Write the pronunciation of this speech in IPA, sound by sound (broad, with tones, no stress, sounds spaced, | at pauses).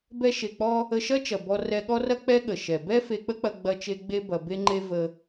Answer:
b ɛ˧ ʃ e˨ k͡p ɔ˧ | ə˧ ʃ ɐ˦ t͡ʃ ɐ˨ b ɔ˧ r ɛ˧ ɠ ɔ˦ r ɐ˦ k͡p ɛ˦ ɠ ə˨ ʃ ɛ˨ b ɛ˦ f e˧ k͡p ə˦ k͡p ɐ˧ ɡ͡b ɐ˦ t͡ʃ e˦ ɡ͡b e˦ b ɐ˧ b e˦ ŋ͡ǃ e˦ v ə˧